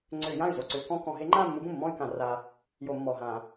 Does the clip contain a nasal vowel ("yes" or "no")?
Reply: yes